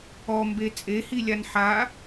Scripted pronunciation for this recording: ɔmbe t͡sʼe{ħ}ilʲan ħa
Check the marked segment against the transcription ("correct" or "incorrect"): incorrect